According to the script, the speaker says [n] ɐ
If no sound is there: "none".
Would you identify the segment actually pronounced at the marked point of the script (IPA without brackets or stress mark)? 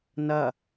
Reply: n